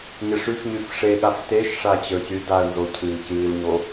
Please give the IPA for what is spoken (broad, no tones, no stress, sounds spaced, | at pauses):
ɲ ɪ ʂ y f ɲ y f ʂ e ɠ a f t e ʃ ʂ a t͡ɕ ə˞ c y d a ə̯ n z o cʰ ɨː c ɨː l ɲ o